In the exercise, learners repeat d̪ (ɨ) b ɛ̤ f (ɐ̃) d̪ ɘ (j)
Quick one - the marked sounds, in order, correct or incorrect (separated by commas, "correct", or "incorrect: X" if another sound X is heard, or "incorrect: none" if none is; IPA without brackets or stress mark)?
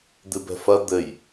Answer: correct, incorrect: ɐ, correct